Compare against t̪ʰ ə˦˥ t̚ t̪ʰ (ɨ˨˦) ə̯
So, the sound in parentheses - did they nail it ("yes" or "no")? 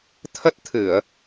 no